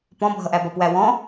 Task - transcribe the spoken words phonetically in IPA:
p ɔ̃ bʱ ʌ ʔ æ b ɒ p w æ w ɔ̃

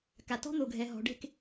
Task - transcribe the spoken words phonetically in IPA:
k a˨ t ɔ̤˦˥ n̪ o˨ ɡʱ ɛ˨ ɦ ɔ̤˨ ɖ e̤˥˨ k

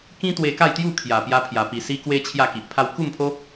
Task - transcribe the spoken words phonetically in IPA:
k ĩ˦ t̪ w e˧ k a˥˧ j t̪ j u˥˧ kʰ j a˨˩ p j a˧ pʰ j a˨˩ p i˨˩ s i˧ k w e˧ t͡ɕʰ j a˥˧ k i˨ ʔ pʰ a˧ w k u˥˧ m pʰ o˦

